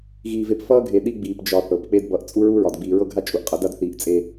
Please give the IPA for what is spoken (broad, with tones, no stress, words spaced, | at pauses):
ɣiː˨ve˨p fʌː˦ɡʱe˨ ɗi˦ɡ͡biː˨pd͡ʒɒ˨ θɤ˨p k͡pe˦dbʌ˨ʔ t͡sʼu˦ɹu˦ɹɒ˨d ɡ͡biː˨ɹɤ˦ɡʱa˦ t͡ʃʼu˨ʔqʼʌ˨˦da˦dθiː˨ʔ t͡sʼe˦